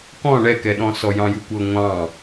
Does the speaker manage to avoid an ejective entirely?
yes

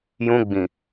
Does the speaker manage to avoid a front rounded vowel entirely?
yes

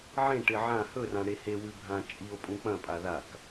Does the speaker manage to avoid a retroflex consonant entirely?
no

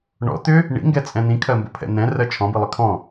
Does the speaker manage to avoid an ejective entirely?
no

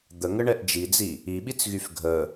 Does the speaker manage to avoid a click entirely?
yes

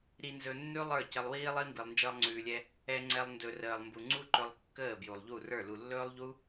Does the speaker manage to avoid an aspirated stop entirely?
yes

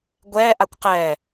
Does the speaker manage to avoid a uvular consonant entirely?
no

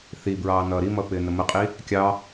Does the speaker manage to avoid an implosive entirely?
yes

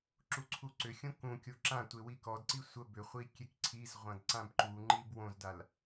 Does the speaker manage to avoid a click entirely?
no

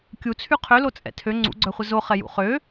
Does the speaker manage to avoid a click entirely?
no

